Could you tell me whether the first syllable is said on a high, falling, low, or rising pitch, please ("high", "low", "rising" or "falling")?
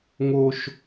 high